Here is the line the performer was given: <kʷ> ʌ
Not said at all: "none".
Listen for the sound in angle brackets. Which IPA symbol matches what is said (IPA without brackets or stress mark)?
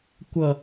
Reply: kʷ